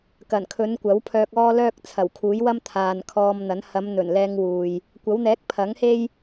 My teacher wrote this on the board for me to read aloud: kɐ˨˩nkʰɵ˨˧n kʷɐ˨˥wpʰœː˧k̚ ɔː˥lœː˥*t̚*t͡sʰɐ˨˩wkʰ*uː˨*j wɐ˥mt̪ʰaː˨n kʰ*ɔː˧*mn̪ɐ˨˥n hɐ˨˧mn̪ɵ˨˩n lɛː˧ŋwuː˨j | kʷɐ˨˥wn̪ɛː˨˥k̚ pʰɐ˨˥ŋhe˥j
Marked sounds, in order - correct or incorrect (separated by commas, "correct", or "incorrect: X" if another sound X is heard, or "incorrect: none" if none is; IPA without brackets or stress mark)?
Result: incorrect: k̚, incorrect: uː˨˥, correct